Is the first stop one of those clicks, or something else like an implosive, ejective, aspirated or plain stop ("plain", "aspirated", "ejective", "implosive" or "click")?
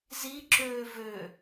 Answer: click